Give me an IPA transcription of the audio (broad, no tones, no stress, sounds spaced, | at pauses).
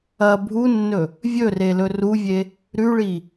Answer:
ɐ bʱ u nː ɵ | vʲ ɵ r e l ɵ r u vʲ e | ɾ ʉ ɭ i